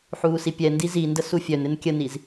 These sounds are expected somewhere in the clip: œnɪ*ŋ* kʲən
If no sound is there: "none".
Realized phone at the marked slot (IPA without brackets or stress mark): n